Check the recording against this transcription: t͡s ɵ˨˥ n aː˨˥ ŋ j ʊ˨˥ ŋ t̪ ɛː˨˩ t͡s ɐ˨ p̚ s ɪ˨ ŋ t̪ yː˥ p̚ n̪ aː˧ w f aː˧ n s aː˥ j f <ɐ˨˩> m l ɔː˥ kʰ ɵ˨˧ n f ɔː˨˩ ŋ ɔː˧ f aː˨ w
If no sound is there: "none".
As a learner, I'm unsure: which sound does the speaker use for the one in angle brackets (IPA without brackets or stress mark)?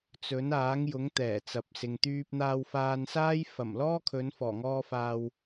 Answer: ɐ˨˩